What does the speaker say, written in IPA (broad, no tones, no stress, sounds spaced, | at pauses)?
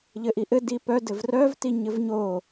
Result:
ʎ ɘ ʔ i ʔ ɘ d i p œ d ɘ v r œ v t i ɲ ɘ v ɲ o